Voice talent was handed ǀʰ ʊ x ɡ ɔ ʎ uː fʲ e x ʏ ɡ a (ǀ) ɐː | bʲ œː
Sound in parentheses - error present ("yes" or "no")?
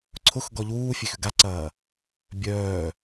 no